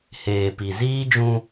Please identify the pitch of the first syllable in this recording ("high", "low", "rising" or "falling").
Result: low